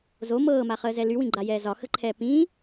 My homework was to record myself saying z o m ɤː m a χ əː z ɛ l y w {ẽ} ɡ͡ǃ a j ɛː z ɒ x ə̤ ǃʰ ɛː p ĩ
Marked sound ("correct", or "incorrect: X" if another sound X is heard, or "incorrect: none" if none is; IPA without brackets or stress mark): incorrect: ĩ